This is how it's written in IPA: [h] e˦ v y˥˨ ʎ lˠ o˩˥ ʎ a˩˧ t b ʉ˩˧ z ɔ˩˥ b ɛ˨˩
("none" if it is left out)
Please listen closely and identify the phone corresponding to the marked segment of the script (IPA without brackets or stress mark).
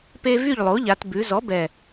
p